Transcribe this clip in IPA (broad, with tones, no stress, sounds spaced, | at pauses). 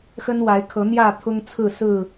x ə˦ n w a˨˦ ɪ̯ kʰ ɤ˨˦ n̪ j ä˥˨ t̪ʰ ʊ˦ ŋ t͡sʰ ɹ̩˥˨ s ɹ̩˥˨